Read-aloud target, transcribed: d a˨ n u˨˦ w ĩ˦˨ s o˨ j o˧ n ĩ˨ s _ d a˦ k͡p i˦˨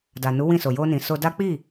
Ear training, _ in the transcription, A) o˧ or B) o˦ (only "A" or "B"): A